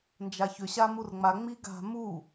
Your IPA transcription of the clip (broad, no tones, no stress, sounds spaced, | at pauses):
n d͡ʒ a ç ʏ ɕ a m u r ŋ͡m a ŋ͡m i ɡ a̤ m u